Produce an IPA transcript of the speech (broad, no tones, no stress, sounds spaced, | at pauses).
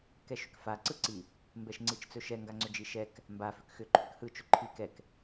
k ɛ ʃ ʏ k f a ǀ ɯ ǀ i | m b ɛ ʃ ŋ͡ǀ i t͡ʃ t͡s ɵ ʃ ɛ ŋ ɡ a ŋ͡ǀ ʏ d͡ʒ i ʃ ɛ k | m b a f ʏ k x ʏ ǃʰ ʏ k h ɯ t͡ʃ ʏ ǃʰ i k ɛ k